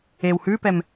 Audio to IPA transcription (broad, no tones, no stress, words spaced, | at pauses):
ew hʉpɛm